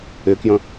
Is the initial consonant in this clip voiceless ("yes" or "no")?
yes